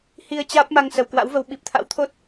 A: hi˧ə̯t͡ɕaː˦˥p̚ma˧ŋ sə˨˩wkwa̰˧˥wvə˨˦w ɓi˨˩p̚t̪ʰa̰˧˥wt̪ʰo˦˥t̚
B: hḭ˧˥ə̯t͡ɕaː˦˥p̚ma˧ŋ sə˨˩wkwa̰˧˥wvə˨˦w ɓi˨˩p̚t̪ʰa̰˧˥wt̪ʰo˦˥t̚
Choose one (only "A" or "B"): A